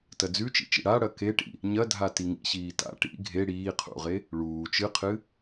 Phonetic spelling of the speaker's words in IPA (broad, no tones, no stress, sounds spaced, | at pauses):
t ɐ d͡z ʉ t͡ʃ ḭ t͡ʃ ḭ ɽ a ɽ ɐ k e ʈ ḭ | ɲ ɐ dʱ a t i ŋ ḭ ɕ iː t a̰ ʈ ḭ ɡʱ e ɽ iː qʰ ṵ ʁ e | ɭ uː t͡ʃ ɨ qʰ ɨ